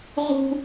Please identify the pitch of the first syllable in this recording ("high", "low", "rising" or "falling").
high